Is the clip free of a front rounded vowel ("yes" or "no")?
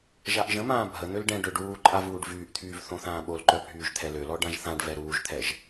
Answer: no